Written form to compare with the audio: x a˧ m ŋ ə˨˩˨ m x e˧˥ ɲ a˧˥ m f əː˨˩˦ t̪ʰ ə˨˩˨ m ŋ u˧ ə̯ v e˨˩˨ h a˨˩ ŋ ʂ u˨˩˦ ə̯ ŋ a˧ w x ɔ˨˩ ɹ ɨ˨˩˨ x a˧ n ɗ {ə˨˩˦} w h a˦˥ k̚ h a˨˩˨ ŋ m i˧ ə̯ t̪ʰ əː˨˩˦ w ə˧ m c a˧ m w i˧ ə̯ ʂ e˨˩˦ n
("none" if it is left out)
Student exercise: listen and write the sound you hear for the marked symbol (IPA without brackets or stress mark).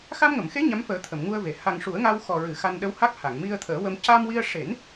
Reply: ə˧˥